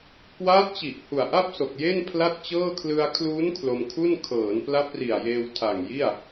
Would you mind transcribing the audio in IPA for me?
k w aː˦˥ t̚ t͡ɕ i˨˩ ʔ h u˨˩ a̯ ʔ a˥˩ p̚ s o˨˩ k̚ j e˥˩ n pʰ l a˥˩ t̚ t͡ɕ ɤː˥˩ kʰ l ɯ˧ a̯ kʰ l uː˦˥ n kʰ l o˧ m kʰ u˥˩ n kʰ ɤː˩˦ n p l a˦˥ p̚ r i˨˩ a̯ j eː˧ w tʰ a˨˩ ŋ j i˥˩ a̯

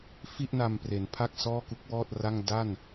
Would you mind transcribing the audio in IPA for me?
f i˥˩ ʔ n a˧ m p r e˩˦ n pʰ a˥˩ k̚ s ɔː˥˩ k u˦˥ k̚ w ɔː˥˩ t̚ r a˥˩ ŋ d a˥˩ n

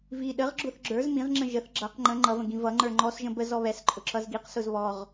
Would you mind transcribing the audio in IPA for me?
v i ɗ ə ʁ ɡ͡ǁ ʊ θ ɡ͡ǁ ə˞ z m ĩ ʁ ŋ͡ǁ ə̃ ʒ ə θ ɡ͡ǁ ʌ q ŋ͡ǃ ə̃ ŋ͡ǃ ʌ v ə̃ ɡ ĩ v ʌ ŋ͡ǃ ə˞ ŋ͡ǃ ɔ s ʒ ə̃ b ə z ɔ β ɛ s ǃʼ ʊ ǁ ʌ z ɡ i q s ʊ z β ɔ ʁ

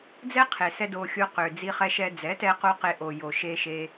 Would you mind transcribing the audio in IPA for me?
d͡z ɛ˦ qʰ e˨ s ɛ˧ d o˧ xʲ o˧ q ø˨ d͡z i˧ χ ɛ˧ ʃ ɛ˧ d͡z ɛ˨˦ t ɛ˧ q o˧ q e˧ ʔ o˨ j o˨ ʃ e˧ ʃ e˧

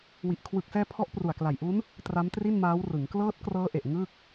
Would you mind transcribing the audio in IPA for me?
w i˨˩ ʔ kʰ w ɯ˨˩ k̚ s ɛː˧ pʰ ɔ˦˥ ʔ p r u˨˩ a̯ k l a˨˩ j ʔ u˦˥ n | t r a˦˥ m t r i˥˩ n m aː˦˥ w r ɯ˩˦ ŋ k l ɤː˦˥ t̚ k r ɤː˦˥ ʔ e˨˩ ʔ ŋ ɯ˥˩ k̚

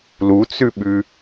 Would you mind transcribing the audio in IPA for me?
l u t͡s ʉ ɓ ʉ

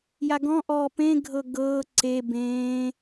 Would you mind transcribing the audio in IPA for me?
j a ɡ ɔ̃ ʔ ɔː p ẽ ɡʱ ɤ ɡ ɤː ǀ e b ẽː

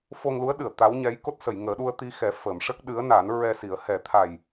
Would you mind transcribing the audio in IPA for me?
f o˧ ŋ l u˧˥ ə̯ ɗ ɨ˨˩˨ ə̯ t̪ a˧˥ w ɲ ɛ˧˥ j k o˦˥ t̚ s ə˨˩˨ j ŋ əː˨˩˦ ɗ u˧ ə̯ t̪ i˧ x ɛ˨˩˦ f ə˨˩˨ m ʂ ə˦˥ k̚ ɗ ɨ˧˥ ə̯ n a˨˩˦ n ɹ ɛ˧ s i˨˩˦ ə̯ h ɛ˨˩˦ t̪ʰ a˨˩ j

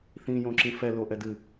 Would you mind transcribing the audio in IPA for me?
θ ĩ j õ ǁ ĩ f ɛ l o ʔ ɛ d ɨ

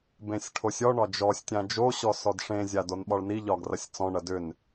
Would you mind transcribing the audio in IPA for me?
b ẽ sʲ ʈʰ o sʲ ɔ ɳ ɒ d͡ʒ ɔ sʲ tʲ ã d͡ʒ o ɕ ɔ s ɔ d ʂ ẽ zʲ a d o n ɓ ɒ ɭ n i ʎ ɒ ɡ r ɐ sʲ t͡s ɔ̃ ɳ ɐ d ʏ n

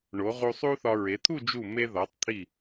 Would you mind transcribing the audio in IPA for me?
ɳ o˩˧ ʁ u˧ sˤ u˥ θ ɒ˧ ɹ e˩˧ t̪ʰ u˥˧ d͡ʒ u˧˩ m e˧ ð ɒ˩˧ tˤ t̪ʰ i˧˩

